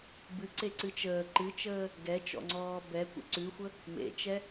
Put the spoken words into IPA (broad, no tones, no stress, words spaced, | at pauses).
bɨǀeǀɨ t͡ʃəː ǃɨt͡ʃəː | ɡɛt͡ʃɔ̰ŋ͡ǀɔː bɛkʷḛ ǀʉxʷə | mḛt͡ʃɛ